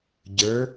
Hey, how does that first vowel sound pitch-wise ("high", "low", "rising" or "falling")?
rising